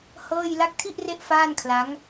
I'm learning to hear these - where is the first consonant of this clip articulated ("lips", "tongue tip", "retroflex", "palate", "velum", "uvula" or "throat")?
throat